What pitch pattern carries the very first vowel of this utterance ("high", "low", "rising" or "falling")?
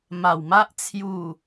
low